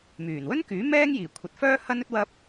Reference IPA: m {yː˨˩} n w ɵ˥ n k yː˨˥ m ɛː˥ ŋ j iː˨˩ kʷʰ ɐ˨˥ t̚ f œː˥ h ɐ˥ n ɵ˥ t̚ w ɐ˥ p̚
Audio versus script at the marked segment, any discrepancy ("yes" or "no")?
no